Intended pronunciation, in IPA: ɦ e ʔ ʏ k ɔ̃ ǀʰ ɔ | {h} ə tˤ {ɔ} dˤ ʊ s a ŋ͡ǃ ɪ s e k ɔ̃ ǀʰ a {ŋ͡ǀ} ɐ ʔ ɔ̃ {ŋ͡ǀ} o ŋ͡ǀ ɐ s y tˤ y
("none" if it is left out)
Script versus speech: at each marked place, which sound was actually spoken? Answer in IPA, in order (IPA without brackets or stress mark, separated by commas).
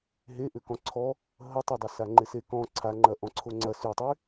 ɦ, ʊ, ŋ͡ǃ, ǀʰ